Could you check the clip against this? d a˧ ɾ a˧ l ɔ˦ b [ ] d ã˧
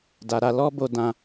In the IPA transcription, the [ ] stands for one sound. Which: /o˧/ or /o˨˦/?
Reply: o˧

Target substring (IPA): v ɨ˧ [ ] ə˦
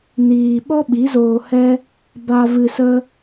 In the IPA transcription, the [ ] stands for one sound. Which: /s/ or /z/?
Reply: s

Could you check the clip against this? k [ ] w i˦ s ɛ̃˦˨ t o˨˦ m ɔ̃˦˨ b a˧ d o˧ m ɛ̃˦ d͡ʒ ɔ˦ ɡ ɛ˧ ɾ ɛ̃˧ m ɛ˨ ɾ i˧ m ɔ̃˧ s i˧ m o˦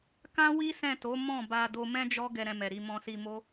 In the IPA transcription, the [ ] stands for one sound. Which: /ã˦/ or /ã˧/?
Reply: ã˦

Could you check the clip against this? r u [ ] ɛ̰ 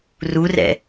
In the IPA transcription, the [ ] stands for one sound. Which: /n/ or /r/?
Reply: r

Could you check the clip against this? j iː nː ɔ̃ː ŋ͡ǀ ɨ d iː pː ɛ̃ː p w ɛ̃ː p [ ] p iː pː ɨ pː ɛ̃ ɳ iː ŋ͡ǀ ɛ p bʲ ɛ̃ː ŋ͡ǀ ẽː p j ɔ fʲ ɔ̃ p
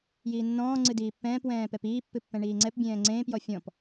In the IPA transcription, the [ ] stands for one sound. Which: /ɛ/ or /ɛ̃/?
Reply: ɛ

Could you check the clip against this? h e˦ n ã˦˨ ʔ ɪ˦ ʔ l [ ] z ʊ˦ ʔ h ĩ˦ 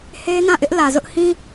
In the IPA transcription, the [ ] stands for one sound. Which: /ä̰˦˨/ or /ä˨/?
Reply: ä˨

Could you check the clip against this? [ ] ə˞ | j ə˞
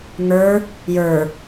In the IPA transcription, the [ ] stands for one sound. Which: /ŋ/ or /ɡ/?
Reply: ŋ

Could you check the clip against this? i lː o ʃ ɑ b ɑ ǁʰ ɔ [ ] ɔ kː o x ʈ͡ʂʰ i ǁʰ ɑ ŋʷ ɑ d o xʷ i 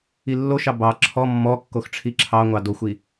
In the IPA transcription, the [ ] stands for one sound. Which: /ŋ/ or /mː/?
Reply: mː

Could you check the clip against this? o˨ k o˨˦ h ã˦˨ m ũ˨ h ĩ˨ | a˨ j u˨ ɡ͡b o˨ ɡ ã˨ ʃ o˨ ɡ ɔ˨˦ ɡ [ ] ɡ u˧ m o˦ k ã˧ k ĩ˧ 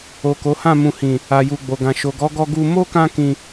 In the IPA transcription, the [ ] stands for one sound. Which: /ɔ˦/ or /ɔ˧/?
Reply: ɔ˧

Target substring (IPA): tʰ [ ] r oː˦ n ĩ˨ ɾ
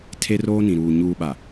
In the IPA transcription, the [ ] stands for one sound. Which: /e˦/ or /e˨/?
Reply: e˦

